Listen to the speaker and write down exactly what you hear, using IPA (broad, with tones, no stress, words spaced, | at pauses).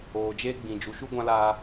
oː˨d͡ʒeː˧ɡ͡bĩ˨ d͡ʒu˨˦ʃu˦ɡʷã˦laː˧